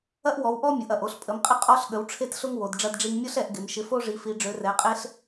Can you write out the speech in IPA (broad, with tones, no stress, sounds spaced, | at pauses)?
ɐ˦ ʔ w ɔ˨˦ w ʔ ɔ˦ mʲ ʊ˨˦ ʔ ɐ˨˦ ʔ o˦ ɬ pʼ ə˨˦ m qʼ ɪ˦ qʼ ɔ˦ ɬ ɠ ə˨˦ w ʈ͡ʂʰ e˦ t ɬ ʊ˦ ŋ w o˨˦ d ɖ͡ʐ ɐ˦ d ɖ͡ʐ i˦ ŋ mʲ ʊ˦ ɬ ɛ˨˦ ʔ ɡ ɪ˨˦ m ʃ ɪ˨˦ f o˦ ʐ i˨˦ f i˨˦ ɖ͡ʐ ø˨˦ r ɛ˨˦ qʼ e˦ ɬ